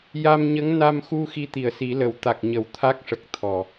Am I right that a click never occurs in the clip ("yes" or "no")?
yes